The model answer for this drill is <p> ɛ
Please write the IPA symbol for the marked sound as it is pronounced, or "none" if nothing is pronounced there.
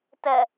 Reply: t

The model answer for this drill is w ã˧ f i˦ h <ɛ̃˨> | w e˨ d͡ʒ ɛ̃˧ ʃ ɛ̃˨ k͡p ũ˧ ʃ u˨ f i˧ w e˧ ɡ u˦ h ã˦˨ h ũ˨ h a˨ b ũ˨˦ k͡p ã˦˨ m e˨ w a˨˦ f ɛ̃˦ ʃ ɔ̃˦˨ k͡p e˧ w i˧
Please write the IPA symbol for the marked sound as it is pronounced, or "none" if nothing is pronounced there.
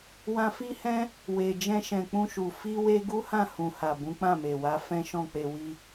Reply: ɛ̃˦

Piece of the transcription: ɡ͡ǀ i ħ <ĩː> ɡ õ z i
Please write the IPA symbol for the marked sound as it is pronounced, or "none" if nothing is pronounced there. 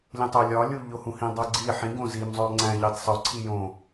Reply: ĩ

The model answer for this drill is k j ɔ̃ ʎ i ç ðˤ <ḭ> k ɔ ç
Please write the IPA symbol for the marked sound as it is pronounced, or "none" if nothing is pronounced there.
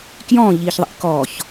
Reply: ḭ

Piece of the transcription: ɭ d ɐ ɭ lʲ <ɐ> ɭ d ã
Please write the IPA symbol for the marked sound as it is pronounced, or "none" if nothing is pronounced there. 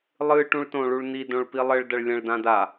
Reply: ɐ̃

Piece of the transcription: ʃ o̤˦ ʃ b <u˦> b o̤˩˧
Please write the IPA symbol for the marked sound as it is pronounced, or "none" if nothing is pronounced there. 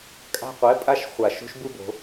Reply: u˦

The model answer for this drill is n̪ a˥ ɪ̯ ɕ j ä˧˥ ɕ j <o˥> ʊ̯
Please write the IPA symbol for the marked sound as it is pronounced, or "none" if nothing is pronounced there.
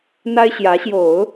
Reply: o˨˩˦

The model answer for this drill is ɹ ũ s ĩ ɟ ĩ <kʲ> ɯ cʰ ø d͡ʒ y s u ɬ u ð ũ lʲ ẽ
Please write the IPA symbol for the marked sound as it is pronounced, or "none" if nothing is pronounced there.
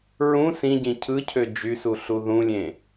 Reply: cʰ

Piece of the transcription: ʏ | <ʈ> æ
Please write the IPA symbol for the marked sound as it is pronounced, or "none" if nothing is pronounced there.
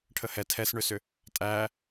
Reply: tʼ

